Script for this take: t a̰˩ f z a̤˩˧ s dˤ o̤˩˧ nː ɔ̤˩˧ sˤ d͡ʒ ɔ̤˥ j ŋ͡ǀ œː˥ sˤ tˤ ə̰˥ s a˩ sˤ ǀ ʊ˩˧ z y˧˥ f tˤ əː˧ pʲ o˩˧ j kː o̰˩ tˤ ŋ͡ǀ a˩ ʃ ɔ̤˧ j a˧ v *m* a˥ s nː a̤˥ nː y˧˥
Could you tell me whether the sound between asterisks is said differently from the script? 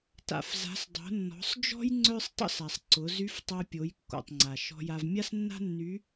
yes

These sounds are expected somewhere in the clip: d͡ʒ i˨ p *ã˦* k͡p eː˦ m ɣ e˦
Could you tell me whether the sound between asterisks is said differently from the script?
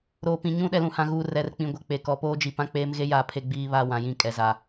no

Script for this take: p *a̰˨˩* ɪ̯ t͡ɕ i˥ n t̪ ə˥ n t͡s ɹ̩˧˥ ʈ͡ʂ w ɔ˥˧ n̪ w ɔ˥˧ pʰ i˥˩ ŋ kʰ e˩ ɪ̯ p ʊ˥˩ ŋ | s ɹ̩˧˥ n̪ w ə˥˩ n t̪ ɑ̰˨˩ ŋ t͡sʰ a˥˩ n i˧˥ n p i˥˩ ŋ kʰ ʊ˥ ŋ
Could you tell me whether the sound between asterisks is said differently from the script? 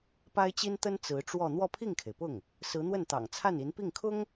yes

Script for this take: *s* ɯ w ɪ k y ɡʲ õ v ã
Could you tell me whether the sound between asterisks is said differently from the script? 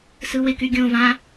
no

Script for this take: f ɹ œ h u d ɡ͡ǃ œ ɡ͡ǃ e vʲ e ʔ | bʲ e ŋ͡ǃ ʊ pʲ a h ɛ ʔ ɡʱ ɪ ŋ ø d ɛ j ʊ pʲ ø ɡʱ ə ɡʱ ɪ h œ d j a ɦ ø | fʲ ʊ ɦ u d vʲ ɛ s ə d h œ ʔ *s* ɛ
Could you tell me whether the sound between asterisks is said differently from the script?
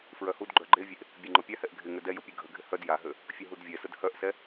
no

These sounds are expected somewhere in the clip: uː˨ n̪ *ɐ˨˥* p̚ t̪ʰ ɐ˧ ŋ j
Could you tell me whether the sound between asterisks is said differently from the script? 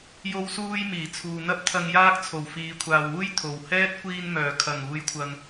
yes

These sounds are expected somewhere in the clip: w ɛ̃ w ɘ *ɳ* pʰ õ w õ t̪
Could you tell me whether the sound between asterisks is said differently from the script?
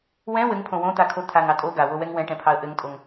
yes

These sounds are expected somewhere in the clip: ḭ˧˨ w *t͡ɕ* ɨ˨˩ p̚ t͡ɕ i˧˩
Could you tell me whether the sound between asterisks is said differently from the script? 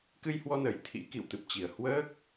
yes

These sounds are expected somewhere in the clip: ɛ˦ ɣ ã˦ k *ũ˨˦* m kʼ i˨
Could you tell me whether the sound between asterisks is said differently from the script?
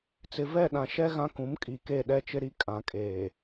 no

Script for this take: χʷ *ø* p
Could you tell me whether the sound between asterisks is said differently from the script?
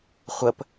yes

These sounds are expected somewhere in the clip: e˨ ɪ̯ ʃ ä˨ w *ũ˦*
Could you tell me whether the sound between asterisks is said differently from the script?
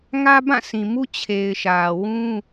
no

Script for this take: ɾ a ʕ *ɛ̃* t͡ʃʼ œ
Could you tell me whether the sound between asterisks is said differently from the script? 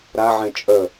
no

